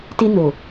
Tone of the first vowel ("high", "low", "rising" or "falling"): high